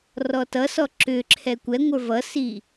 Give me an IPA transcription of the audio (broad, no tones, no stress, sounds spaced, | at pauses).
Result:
r ɔ t ʌ s ɔ ǁ ʏ ǁʰ ɛ kʷ ɛ ŋʷ ə˞ v ʌ s i